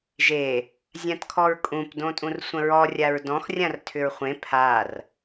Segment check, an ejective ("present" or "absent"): present